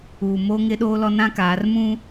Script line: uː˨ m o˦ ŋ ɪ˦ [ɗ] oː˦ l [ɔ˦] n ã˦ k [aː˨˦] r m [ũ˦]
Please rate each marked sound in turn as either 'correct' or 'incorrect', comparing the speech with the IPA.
correct, correct, correct, correct

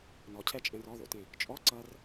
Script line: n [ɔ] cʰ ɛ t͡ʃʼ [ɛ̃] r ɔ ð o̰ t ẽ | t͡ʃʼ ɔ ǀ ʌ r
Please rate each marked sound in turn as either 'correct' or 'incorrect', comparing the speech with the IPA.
correct, correct

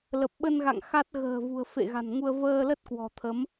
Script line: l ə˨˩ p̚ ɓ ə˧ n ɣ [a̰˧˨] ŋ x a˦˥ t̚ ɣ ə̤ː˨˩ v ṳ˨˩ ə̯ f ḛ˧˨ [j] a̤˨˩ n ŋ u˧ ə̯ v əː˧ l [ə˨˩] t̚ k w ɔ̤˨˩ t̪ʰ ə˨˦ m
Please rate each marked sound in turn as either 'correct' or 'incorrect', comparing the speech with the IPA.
correct, incorrect, incorrect

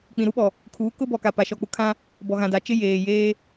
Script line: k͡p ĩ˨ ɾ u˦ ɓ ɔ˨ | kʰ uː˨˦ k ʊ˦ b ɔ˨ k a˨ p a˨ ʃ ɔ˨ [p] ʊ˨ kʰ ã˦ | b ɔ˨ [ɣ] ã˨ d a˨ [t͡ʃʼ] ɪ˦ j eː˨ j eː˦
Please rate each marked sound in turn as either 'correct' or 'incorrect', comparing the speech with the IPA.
incorrect, correct, incorrect

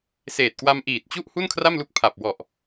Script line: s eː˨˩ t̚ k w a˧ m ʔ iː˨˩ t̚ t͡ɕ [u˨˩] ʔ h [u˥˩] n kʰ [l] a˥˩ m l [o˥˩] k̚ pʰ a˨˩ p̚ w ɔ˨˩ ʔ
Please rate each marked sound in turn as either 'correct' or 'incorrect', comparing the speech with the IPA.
incorrect, correct, incorrect, incorrect

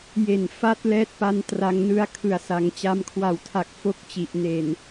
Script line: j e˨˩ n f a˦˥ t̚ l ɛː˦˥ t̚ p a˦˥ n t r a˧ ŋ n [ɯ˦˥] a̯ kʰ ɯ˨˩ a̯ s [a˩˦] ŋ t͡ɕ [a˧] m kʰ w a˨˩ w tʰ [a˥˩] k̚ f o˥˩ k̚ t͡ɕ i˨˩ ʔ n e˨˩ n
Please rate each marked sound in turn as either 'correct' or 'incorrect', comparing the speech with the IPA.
correct, correct, correct, incorrect

